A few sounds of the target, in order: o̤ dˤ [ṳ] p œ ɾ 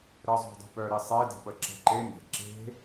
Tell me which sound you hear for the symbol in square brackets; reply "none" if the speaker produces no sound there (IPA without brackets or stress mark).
ṳ